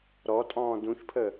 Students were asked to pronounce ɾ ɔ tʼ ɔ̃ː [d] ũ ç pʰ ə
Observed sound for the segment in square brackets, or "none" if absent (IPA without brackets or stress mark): d